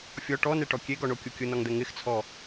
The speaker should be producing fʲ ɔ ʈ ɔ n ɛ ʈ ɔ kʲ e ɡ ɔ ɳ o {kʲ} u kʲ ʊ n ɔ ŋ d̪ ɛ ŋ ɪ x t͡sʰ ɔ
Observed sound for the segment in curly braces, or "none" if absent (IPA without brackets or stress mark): kʲ